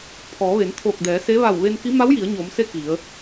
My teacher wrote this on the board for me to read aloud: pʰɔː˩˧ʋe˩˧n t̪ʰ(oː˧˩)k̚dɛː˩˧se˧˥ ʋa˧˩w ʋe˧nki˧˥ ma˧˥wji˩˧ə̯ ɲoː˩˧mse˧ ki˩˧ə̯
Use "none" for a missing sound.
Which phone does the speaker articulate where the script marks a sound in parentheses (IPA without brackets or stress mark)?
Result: oː˧˩